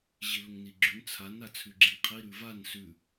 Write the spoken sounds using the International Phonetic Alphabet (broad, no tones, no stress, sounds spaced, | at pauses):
ʑ i l ə ŋ n i ɡ͡ǁ ʉ n t͡sʰ a n a t͡sʰ ʉ ɡ͡ǁ i ŋ qʰ i ɾ ʉ v a n s ʉ